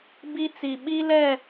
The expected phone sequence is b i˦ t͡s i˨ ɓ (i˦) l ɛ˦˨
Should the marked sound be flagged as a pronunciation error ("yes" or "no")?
no